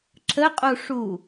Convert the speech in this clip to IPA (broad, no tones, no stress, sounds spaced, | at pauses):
ǁ ə qʼ u ʂ u